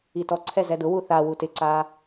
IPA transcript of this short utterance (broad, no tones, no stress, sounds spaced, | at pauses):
i t ɔ ǀʰ ɛ z ɛ d ʊ w u θ a w u t ɪ ǀ a